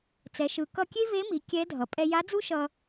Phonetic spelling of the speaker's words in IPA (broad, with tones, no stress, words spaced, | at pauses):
t͡sɛ˩˧ʃɯ˩˧ kʌ˧kʲe˥ve˧˥mi˩˧ kʲɛ˧˥dʱʌ˩ pʼɛ˧ja˧˥d͡zu˥ʃʌ˧